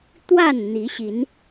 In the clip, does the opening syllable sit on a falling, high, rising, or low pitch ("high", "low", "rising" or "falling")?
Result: falling